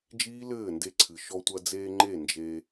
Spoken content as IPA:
d͡ʒ iː˦ l ɘː˦˨ n d e˧ ǀʰ ɨ˨ ʃ ɔ˧ tʷ ɐ˧ d͡z eː˧ ŋ͡ǃ e˦˨ n d͡ʒ e˧

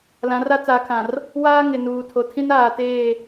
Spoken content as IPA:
l ã˨˦ r a˦ t͡s aː˨ kʰ ã˨ r | w aː˦ ŋ ɪ˨ n uː˨ tʰ o˨ tʰ ĩ˦ n aː˨ t eː˦˨

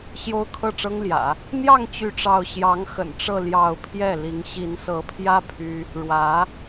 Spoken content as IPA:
ɕ j o˥ ʊ̯ kʰ ɤ˥˩ ʈ͡ʂ ɤ˥ ŋ l j ä̰˨˩˦ | n̪ j ɑ˥˧ ŋ t͡ɕ y˥˧ ʈ͡ʂ ɑ˥˩ ʊ̯ ɕ j ɑ˧˥ ŋ x ə̰˨˩ n ʈ͡ʂ ɤ˥˧ l j ɑ˥˧ ʊ̯ pʰ j ɛ˥˩ l i˧˥ ŋ ɕ i˧˥ n s ɤ˧˥ pʰ j ä˥ pʰ y˥ | ɻ w ä˧˥

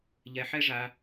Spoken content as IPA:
ʎ ɛ˧ ħ ɛ˦ ʐ a˧

